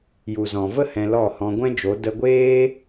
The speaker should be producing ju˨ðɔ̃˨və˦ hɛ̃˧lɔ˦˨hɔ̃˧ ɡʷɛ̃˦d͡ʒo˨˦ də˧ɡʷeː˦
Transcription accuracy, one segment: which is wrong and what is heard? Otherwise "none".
ð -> z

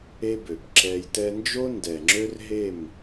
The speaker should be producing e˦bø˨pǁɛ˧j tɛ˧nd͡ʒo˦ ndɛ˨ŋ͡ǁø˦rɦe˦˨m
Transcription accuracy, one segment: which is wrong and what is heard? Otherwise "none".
none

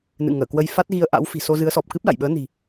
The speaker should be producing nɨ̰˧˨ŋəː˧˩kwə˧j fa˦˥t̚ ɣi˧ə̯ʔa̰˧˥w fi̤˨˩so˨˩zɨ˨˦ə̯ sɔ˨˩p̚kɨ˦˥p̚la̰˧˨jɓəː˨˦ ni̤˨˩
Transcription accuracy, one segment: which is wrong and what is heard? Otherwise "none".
o˨˩ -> o˧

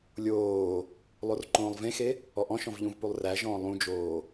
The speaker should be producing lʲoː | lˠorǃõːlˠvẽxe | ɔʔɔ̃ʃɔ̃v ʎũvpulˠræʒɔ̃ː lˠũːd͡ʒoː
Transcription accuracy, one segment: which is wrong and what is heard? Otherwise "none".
ũː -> ũ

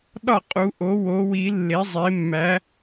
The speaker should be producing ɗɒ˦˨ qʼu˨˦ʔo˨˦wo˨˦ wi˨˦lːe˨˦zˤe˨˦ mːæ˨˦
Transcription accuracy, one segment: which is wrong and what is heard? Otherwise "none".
none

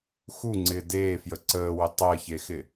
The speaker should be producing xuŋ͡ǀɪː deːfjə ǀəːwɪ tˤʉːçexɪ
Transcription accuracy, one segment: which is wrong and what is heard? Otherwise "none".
ʉː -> əː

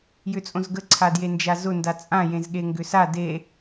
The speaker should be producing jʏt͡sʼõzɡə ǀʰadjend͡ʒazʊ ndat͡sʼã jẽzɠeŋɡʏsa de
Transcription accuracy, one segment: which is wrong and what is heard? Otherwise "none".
none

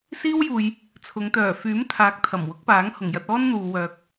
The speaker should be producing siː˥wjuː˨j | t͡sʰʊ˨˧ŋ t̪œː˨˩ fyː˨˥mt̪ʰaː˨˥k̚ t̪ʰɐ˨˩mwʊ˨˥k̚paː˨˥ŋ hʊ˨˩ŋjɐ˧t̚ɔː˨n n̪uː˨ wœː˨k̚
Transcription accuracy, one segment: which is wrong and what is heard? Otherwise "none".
ɔː˨ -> ɔː˥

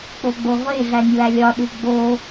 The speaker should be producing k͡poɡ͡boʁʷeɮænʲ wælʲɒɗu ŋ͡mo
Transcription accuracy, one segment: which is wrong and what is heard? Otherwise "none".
ŋ͡m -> ɡ͡b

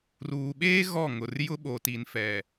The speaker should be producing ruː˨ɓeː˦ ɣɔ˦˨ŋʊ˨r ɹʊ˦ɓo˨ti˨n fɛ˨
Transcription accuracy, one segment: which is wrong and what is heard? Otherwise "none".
ɹ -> j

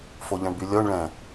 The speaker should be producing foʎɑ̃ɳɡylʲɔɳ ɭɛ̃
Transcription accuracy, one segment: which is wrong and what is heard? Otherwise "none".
ɡ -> b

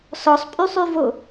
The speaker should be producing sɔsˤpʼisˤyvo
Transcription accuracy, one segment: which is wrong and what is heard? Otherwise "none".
i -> y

